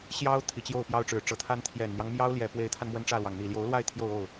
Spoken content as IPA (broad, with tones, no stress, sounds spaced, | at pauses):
ɕ j ɑ˥ ʊ̯ t̪ʰ i˨˩ t͡ɕ j o˥˩ ʊ̯ p j ɑ˥ ʊ̯ ʈ͡ʂ ɻ̩˨˩ ʈ͡ʂ ɤ˧˥ t̪ʰ a˥ n t̪ʰ j ɛ˨˩ n n̪ j ɑ˦ ŋ m j ɑ˥ ʊ̯ l j ɛ˨˩ p w e˧˥ ɪ̯ t̪ʰ a˧ n m w ə˥ n ʈ͡ʂ ä˥˩ l w ɑ˩ ŋ n̪ i˨˩ l j o˧˥ ʊ̯ l w a˥˧ ɪ̯ t̪ʰ j o˥˧ ʊ̯ o˥˩ ʊ̯